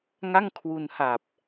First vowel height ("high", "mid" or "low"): low